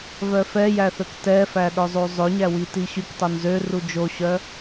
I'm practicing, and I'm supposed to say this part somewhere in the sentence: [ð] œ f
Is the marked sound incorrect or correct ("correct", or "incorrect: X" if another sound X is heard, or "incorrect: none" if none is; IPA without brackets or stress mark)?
incorrect: v